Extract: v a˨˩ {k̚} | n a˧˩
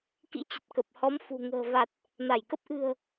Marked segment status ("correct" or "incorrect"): incorrect